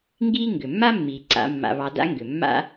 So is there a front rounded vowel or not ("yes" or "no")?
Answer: yes